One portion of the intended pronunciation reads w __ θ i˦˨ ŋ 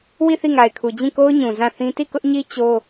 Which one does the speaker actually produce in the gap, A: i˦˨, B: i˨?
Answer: A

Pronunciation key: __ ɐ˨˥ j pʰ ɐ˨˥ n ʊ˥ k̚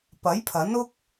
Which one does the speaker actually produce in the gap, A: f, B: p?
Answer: B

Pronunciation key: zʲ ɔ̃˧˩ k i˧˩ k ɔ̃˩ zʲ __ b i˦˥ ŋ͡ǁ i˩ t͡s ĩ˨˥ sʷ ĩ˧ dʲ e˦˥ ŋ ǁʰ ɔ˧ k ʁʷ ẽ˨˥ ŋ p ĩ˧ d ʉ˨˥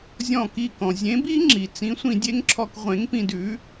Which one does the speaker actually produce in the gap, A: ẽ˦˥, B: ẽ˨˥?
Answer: B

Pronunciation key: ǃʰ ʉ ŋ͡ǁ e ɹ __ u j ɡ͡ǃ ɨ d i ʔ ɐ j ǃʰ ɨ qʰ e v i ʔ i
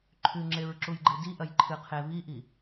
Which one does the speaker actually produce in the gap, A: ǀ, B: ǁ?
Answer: B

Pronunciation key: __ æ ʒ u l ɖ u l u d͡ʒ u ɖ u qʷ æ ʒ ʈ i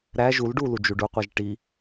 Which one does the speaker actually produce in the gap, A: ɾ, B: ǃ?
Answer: A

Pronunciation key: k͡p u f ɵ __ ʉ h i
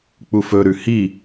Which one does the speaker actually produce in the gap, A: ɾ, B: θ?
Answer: A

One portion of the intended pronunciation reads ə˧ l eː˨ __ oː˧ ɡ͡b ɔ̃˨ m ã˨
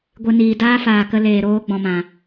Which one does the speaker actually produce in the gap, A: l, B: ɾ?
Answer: B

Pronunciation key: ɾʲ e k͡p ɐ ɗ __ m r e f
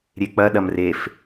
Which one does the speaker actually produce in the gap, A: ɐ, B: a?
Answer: A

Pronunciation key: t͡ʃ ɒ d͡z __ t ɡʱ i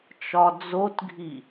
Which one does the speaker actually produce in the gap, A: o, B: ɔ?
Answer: A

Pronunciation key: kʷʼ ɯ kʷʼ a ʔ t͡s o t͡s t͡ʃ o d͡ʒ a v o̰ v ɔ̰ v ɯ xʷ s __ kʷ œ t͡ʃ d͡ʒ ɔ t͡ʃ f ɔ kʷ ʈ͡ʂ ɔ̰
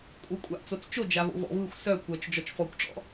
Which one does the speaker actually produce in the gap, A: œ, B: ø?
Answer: A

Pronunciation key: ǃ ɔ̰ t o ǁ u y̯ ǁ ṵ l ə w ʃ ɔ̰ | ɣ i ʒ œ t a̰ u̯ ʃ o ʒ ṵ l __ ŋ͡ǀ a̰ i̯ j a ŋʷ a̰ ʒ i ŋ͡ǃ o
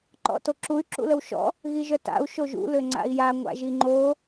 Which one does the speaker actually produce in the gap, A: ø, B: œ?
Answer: A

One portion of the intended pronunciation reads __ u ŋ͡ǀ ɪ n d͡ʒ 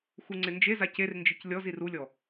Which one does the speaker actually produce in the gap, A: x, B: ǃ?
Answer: A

